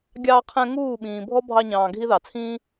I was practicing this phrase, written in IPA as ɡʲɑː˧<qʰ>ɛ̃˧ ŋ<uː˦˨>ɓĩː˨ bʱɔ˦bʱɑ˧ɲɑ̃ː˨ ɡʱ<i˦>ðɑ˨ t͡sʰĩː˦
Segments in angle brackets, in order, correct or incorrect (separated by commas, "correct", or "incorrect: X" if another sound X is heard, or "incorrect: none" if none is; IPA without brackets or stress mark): correct, correct, correct